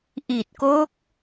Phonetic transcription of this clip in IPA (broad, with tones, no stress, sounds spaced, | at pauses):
ʔ i˨˩ t̚ k o˦˥ k̚